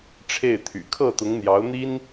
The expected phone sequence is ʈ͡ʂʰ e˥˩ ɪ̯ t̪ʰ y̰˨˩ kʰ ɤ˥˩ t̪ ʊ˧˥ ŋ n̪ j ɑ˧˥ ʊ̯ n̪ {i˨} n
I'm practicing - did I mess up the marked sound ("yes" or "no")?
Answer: yes